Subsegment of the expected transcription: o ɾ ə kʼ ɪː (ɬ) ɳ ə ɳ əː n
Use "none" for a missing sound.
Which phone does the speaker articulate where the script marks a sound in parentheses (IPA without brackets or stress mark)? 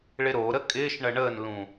ʃ